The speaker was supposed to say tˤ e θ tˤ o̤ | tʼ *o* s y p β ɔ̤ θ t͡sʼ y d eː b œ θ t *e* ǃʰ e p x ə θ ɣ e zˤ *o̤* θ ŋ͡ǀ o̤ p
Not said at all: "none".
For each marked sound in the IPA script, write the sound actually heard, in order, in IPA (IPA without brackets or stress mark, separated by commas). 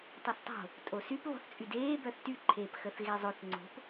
o, y, o